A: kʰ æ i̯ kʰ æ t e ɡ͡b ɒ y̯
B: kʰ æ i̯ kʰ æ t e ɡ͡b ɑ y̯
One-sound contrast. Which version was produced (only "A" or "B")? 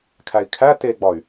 A